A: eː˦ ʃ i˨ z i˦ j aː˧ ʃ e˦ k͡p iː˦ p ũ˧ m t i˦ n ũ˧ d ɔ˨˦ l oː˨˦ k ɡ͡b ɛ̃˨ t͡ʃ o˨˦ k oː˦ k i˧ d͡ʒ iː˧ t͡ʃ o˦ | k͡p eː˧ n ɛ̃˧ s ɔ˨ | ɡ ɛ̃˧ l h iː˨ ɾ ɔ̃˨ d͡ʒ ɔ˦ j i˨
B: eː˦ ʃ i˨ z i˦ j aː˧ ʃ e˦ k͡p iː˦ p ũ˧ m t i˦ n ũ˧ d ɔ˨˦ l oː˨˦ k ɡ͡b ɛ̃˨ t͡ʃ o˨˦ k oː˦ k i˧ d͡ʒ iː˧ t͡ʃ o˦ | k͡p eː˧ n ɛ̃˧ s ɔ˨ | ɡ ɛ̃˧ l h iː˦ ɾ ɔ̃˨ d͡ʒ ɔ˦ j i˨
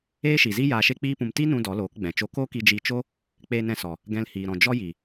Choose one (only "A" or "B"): A